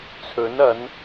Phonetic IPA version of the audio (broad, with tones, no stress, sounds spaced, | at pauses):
t͡sʰ ɵ˨˥ n ɐ˨˥ n